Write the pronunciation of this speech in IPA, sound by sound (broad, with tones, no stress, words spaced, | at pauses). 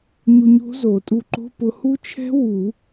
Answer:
ɲu˧ɲo̤˦˥zo˨˩˦tʼu˧ ǃo̤˧˥˧pʊ˧ hu˦˥t͡ʃʰɛ̤˦˥ wu˨˩˦